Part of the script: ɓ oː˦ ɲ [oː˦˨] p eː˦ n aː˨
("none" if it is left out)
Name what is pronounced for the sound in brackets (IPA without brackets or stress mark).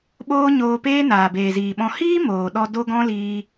oː˧